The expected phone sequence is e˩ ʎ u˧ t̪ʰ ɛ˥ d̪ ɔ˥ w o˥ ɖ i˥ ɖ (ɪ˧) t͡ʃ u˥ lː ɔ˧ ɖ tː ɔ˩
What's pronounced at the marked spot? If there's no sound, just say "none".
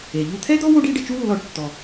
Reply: ɪ˧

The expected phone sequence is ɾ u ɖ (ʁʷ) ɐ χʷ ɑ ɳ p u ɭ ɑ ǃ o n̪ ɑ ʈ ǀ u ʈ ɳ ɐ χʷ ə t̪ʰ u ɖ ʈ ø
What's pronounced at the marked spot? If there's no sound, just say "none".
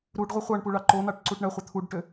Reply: ʁʷ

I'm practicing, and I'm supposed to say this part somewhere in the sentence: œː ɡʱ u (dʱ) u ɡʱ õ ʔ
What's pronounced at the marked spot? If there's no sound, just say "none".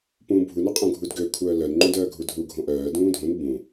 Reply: dʱ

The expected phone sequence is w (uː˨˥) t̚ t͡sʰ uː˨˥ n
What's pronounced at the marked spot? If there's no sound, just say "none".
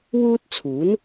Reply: uː˥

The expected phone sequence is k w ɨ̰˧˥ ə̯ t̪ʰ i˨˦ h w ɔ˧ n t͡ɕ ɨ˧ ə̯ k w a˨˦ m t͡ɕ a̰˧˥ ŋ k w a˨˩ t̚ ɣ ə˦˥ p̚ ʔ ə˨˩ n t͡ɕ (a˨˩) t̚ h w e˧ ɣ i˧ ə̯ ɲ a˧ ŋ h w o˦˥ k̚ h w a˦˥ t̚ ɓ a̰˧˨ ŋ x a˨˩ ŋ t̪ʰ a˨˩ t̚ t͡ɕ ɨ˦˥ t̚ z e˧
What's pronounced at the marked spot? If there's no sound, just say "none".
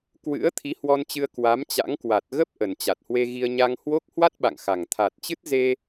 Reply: a˨˩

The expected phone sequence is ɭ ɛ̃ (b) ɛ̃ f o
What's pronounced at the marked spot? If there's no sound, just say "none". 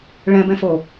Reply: b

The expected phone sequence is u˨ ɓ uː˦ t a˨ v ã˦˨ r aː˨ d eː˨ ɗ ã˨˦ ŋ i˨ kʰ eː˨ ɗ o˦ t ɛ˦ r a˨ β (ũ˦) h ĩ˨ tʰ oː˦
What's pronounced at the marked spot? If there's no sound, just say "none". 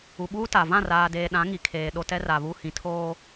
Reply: u˦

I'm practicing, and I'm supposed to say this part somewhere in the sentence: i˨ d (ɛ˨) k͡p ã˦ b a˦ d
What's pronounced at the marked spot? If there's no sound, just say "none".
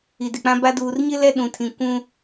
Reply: ɪ˨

